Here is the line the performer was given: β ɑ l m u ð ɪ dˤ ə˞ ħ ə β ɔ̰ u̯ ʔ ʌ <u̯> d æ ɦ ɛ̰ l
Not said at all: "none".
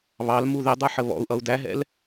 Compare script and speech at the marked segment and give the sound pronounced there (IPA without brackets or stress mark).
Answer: u̯